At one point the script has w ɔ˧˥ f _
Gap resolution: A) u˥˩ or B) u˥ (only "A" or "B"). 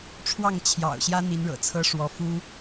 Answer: B